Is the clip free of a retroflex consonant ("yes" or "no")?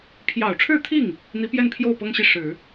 no